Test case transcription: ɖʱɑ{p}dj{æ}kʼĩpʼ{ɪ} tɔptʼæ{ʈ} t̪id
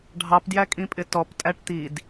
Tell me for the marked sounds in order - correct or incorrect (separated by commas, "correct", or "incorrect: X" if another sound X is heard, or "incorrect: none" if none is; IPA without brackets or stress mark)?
correct, correct, correct, correct